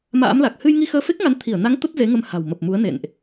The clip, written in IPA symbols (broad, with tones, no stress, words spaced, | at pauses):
ma̰ː˧˥mla˨˩k̚ hɨ˧jŋi˧ xəː˧fe˦˥k̚ŋa˨˦n t̪ʰi˧˩ə̯na˨˦ŋ t̪ə˦˥t̚ze˨˦ŋə˧mha̤˨˩w mə˨˩p̚mu˨˦ə̯ nḛ˧˨nʔ